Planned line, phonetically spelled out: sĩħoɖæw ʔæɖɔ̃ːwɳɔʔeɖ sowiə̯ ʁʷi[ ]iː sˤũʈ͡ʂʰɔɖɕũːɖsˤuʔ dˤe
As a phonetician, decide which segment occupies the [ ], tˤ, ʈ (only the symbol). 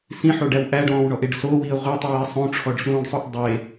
tˤ